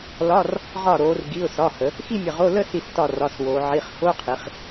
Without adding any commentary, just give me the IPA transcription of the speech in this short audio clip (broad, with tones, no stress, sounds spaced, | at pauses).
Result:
l ɒ˧˥˧ r | ʁ ɒ˧˩ ɾ oː˩˧ r ɡ i˩˧˩ ʊ̯ s ɒ˩˧˩ h ə˩˧ | x i˥˧ mʲ ə˧˩ ʁ o˧˥˧ l ə˥˧ s i˧˩ s t ɒ˧˩ r ɒ˩˧˩ s w oː˩˧ ʕ i˩˧˩ χ x o˧˥˧ qʰ i˩˧ χ